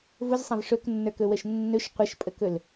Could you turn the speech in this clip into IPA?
vʊzsˤãv ʂɵknːə˞kɵwəʃ nːɵʃ qʷəʃpʼəkɵl

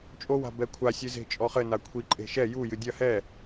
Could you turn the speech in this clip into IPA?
t͡ʃʼowa̤ bɛkʷʰasʲɨ ze̤t͡ʃʼɔχɘna kʷʰiǃʼe̤ ʃɛ jujɨ dʲɐ hɛ

